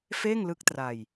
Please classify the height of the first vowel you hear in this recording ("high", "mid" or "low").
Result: mid